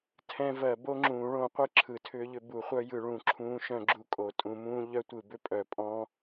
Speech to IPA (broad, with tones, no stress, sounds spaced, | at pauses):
tʰ ɛ̃˦˥ v ɜ˨˩˦ b o˦˥ ŋ͡ǁ ũː˨˩˦ ɭ õ˨˩˦ qʷ ɯ˦˥ ǁʰ ɯ˨˩˦ tʰ ʏː˦˥ ʎ ʏ˦˥ b u˨˩˦ χʷ œ˦˥ j ɯ˨˩˦ ɭ ũ˨˩˦ ǁʰ ũː˦˥ ʃ œ̃˦˥ ɡ͡ǁ u˦˥ kʼ o˨˩˦ tʼ ũ˨˩˦ m ũː˦˥ ʎ œ˦˥ tʷ ɯ˨˩˦ b ʏ˦˥ pʼ œ˨˩˦ pʼ ɔ̃˦˥